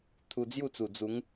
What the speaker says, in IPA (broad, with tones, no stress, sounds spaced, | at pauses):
t̪ʰ u˧ d͡z j u˥˧ t͡s u˨˩ d͡z u˨˦ ŋ